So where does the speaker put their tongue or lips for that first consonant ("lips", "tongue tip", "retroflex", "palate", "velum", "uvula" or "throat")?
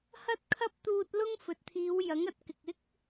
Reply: throat